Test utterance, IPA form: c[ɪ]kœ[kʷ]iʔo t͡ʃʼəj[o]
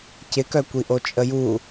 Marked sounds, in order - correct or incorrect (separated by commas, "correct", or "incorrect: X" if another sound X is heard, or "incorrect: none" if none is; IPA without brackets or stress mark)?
correct, correct, incorrect: u